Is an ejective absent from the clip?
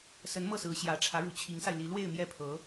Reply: yes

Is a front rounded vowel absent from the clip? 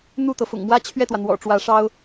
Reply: yes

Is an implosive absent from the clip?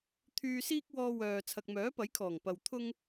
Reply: yes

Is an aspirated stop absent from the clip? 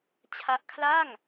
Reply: no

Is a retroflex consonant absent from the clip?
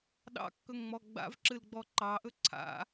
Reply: yes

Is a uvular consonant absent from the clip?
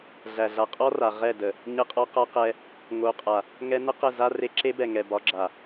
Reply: no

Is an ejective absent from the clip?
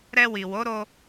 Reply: yes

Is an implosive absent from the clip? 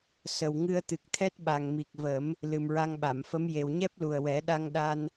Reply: no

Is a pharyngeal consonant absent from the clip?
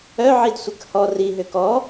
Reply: no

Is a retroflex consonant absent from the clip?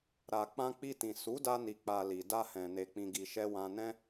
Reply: yes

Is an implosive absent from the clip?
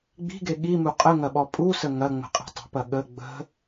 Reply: no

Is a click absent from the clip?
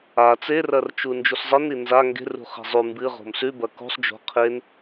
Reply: yes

